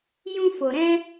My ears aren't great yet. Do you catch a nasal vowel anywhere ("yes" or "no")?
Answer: yes